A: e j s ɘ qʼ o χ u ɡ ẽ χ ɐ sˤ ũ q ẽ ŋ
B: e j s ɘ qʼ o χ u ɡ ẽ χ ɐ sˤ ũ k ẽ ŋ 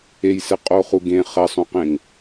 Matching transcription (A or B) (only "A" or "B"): A